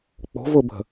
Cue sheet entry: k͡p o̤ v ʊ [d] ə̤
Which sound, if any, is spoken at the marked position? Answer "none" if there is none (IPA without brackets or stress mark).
b